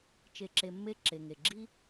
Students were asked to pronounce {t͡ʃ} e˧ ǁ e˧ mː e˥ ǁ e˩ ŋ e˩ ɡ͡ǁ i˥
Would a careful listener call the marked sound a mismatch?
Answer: no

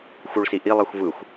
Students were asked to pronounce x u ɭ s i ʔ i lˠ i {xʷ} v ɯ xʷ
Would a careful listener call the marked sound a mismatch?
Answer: no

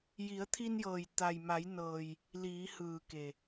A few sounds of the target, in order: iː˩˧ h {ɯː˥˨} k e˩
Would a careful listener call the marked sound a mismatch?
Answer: yes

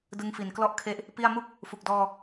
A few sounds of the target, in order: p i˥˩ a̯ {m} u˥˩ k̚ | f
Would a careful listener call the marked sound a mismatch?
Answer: no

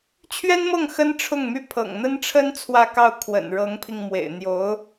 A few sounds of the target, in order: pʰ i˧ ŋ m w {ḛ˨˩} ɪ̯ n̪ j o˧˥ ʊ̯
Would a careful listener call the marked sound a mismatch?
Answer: no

